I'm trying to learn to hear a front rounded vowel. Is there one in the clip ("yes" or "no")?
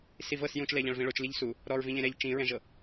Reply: no